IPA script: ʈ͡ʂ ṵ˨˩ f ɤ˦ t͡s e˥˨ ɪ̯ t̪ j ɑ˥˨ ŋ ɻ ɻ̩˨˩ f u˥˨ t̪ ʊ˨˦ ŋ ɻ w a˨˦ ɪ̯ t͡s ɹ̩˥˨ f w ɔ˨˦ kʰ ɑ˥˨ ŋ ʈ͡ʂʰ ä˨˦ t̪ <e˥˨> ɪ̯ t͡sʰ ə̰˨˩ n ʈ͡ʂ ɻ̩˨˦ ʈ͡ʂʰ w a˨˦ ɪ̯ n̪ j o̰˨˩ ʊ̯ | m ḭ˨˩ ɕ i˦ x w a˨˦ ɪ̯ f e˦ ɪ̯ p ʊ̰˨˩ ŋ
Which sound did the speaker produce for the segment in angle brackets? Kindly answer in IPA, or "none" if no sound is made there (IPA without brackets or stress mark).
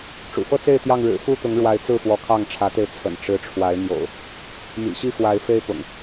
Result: e˧